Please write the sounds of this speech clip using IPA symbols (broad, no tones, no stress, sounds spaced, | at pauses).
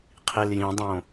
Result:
qʰ i l j ĩ dˤ õ